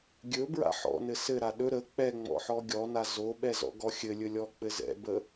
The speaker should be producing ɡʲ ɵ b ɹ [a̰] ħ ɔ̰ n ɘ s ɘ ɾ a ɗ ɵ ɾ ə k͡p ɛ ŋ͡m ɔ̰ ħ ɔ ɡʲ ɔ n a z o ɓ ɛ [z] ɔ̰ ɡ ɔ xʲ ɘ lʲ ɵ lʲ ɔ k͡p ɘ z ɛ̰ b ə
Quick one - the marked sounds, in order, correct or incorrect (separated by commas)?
correct, correct